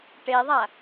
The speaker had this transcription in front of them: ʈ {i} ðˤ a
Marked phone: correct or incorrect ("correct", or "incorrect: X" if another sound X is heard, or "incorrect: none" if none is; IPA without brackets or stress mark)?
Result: incorrect: e